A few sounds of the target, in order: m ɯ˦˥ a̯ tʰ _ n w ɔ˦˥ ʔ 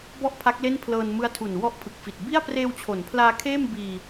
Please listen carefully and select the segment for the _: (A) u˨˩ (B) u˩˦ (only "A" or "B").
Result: A